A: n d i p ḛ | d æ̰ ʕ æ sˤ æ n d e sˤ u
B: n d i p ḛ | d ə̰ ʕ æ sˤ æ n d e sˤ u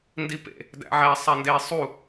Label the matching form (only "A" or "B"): A